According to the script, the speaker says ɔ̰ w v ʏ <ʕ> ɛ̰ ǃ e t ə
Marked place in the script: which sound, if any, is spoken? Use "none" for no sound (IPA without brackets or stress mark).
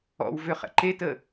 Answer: χ